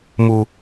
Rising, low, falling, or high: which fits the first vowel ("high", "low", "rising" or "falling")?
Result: low